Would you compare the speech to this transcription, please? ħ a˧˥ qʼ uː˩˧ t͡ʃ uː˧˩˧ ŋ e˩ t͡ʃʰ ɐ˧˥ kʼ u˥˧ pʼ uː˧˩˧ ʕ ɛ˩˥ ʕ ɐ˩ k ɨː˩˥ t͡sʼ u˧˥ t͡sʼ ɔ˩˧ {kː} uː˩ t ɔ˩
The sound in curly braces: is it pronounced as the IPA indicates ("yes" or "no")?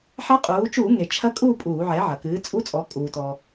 no